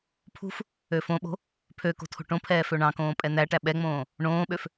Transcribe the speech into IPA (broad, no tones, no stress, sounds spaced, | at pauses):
pʰ ṳ f | ø f õ ɓ o̤ | pʰ ø k o̤ tʰ o̤ ʈ õ pʰ ɛː f ø ɳ ɑ̃ k õː pʼ ɛ n̪ æ ʈ æ ɓ ɛ ŋ͡m õː | ɳ õː ɓ ø f